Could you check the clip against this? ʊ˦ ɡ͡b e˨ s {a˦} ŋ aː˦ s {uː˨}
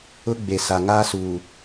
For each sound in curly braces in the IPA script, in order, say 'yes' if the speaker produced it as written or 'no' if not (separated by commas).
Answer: no, yes